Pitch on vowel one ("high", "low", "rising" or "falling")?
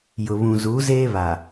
low